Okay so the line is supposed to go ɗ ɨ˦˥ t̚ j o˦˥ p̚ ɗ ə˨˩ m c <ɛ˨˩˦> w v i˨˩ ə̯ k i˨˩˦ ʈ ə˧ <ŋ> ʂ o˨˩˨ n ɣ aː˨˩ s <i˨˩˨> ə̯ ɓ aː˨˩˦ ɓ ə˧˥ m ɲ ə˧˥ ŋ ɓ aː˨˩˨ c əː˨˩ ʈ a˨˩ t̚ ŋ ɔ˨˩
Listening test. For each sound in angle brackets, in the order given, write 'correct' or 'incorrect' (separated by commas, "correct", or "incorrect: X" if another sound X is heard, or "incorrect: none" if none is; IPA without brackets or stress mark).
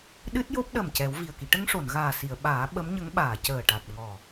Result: correct, correct, correct